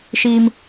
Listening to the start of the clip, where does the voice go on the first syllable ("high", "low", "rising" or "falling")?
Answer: high